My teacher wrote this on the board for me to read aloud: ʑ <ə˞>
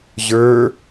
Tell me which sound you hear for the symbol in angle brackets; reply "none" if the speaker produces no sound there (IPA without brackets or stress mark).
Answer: ə˞